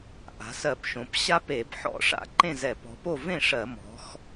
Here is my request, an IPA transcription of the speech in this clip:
ʔ a̤˩˧ s ɜ˧˩˧ p ʃ õ˩˧ p ɕ a˥ p e˧˩˧ b ħ ɔ̰˧˩˧ ʂ a̰˧˩˧ ǃ ẽ˥˩ z ɛ˧˩˧ p ɔ̤˩˧ p o˥˩ v ẽ˥˩ ʂ ɜ˧˩˧ m ɔ̤˩˧ x

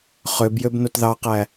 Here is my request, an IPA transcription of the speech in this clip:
χ ø b j ø b n o t ð ɑ q æ

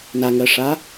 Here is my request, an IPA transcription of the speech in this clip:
n a ŋ ɜ ʂ a

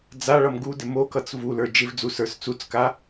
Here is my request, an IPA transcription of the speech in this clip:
d͡z a ɭ ʌ m ɡ u d ɪ m o k ʌ t͡s v u l ə˞ d͡ʒ ɪ v d͡z u s ə˞ s t͡s u t͡s k a

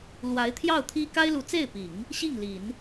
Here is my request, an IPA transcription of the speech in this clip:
l w a˧˥ ɪ̯ t̪ʰ j ɑ˥˩ ʊ̯ t̪ʰ i˥ k a˥ ɪ̯ l u˧˥ t͡s e˥˩ ɪ̯ p i˨˩˦ ŋ | ɕ i˥˩ ŋ l i˨˩˦ n

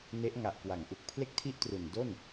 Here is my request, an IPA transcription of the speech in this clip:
n e˦˥ ʔ ŋ a˨˩ ʔ k w a˩˦ ŋ ʔ u˨˩ k̚ pʰ l e˥˩ k̚ tʰ i˥˩ ʔ t r u˨˩ n d o˥˩ n

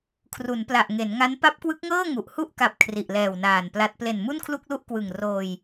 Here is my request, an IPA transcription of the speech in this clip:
kʰ r u˩˦ n p l a˨˩ ʔ ŋ e˩˦ n ŋ a˦˥ n p a˦˥ p̚ k w ɯ˦˥ k̚ ŋ ɤː˥˩ ŋ u˨˩ ʔ h u˥˩ ʔ k a˨˩ p̚ kʰ r i˨˩ ʔ l ɛː˨˩ w n aː˨˩ n p l a˦˥ t̚ p l e˨˩ n m u˥˩ n kʰ l u˥˩ k̚ l u˥˩ ʔ k w ɯ˨˩ ŋ r oː˧ j

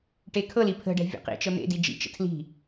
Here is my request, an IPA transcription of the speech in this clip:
ʈ e kʰ ɤ l i pʰ ə̤ ɖ ɛ̤ vʲ ḛ q ḭ t͡ʃ ɤ n̪ ḛ d i d͡ʒ ḭ t͡ʃ ə̰ tʰ l i̤

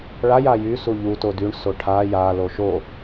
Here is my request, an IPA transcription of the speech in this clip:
ɭ a j a j y s u ʎ u t o d y ɳ s o ʈʰ a j a l o ʃ o

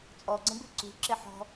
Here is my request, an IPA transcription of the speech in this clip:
t͡sʼ ɔ ɡ͡ǀ ə̃ b ɪ ǀ ṳ ǁ ɪ ħ ɔ̤

